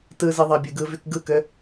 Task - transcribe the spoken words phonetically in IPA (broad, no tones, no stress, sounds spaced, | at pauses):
t ɯ z ɯ ðˤ ɑ bʲ ɯ ɡ ɯ v y k ɡ ɯ k ø